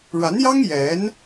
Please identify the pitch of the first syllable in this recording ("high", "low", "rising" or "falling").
rising